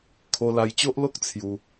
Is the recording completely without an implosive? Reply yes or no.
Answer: yes